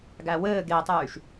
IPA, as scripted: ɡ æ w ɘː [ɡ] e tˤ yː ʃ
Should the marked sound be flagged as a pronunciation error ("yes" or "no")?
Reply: no